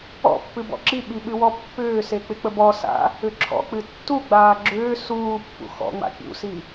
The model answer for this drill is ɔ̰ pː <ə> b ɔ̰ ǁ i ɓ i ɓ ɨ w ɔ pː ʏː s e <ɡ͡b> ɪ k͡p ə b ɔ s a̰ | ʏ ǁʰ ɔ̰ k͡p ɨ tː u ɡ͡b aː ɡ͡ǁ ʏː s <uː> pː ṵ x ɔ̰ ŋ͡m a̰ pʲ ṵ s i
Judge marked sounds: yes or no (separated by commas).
no, no, yes